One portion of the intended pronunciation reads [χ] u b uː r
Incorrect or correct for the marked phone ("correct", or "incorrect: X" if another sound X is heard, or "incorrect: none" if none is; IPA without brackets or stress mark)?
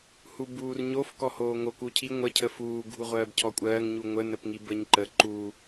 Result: incorrect: h